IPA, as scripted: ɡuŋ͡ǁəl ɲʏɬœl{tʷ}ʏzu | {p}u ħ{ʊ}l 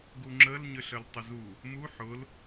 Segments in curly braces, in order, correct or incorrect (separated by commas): incorrect, incorrect, correct